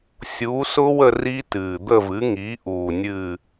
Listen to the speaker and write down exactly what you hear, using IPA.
sʲuː˩˥sʊ˦˥wə˦˨ ri˦˥tɨː˨˩ d̪ə˦˨vɨ˩˥ŋi˩˥ ʔuː˨˩nʲɨ˦˨

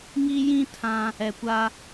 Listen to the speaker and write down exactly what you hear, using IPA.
ŋi˦ jĩ˦ tʰã˦ | ɛ˨kʷaː˦

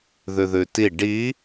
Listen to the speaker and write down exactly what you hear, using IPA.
ðʉðʉti ɖi

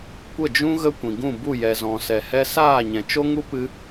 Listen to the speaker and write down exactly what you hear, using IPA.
kʷə˦˨d͡ʒũ˦ ɣə˦kʷĩ˨ɡũ˦˨bu˦˨ jɛ˨zɔ̃˨sɛ˨ hɛ˦ saː˦˨ɲɛ̃˨t͡ʃo˦ŋu˦ pɨ˦

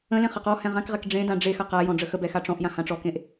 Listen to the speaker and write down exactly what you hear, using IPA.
ə̃lẽ χəqɔhɛ̃ ʁãkʁɛk ɖ͡ʐẽ dãɖ͡ʐexɐ qa jɔ̃ɖ͡ʐəxəbɛ xaʈ͡ʂɔ̃ʔjã hãʈ͡ʂɔkẽʔ

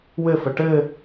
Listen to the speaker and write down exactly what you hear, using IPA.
wɘfə ʈɘ

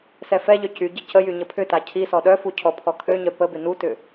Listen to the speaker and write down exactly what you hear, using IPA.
sɛfɛʎœ cyɟə cəjy ɲəpʰʏta cʰisɔ ɗœfu cʰɔpʰɔkʰøɲœ pəbɪ nutʏ

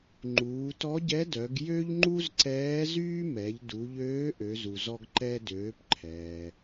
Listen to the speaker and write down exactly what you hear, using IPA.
ŋ͡ǃuː˩˧tɔ˧˥ɟɛ˧˥dœ˩˧ɡ jø˥ʎŋ͡ǃu˥zǀɛː˧˥zyː˥ mɛ˩˧ʎ du˩˧ʎøː˧˥ ʔø˩˧zu˩zɔ˧ɡ ǃɛ˧døː˩˧pǃʰɛː˩

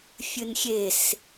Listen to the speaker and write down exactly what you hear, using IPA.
fʲɨnxʲes

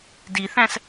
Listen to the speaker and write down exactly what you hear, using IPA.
diθæ̃s

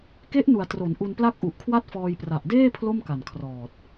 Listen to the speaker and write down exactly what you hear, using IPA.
ke˦˥ʔnu˩˦a̯ tro˩˦nʔu˧n pla˥˩k̚ʔu˨˩ʔkʰwa˥˩t̚fɔː˧j pra˨˩ʔdeː˥˩ pʰlo˥˩mka˨˩nkʰrɔː˨˩t̚

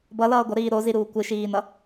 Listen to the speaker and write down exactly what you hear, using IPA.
bʌlʌː ɡʷʌɾiː ɾoziɾuː kʷɯʃiːnʌ

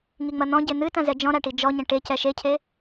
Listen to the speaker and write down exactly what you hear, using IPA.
ŋiŋ͡mɐn̪ɔ̃ ɟen̪ɨ tɐ̃zɛd͡ʒɔ̃ ɾaʈid͡ʒɔɲɐ̃ ʈecɛ ʃecʰe

